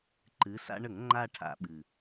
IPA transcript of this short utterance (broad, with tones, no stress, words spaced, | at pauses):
ǃɨ˩˧sa̰˧ɳə˧˩˧ŋ ŋ͡ǃa˥˧ʈʰa̰˧˩˧ ɓɨ˨˩